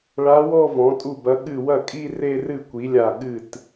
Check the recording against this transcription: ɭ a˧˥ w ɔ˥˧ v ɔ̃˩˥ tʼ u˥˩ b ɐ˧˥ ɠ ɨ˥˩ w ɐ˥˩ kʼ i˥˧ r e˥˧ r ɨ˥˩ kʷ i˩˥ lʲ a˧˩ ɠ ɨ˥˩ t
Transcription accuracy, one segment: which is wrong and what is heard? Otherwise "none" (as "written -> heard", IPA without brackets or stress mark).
none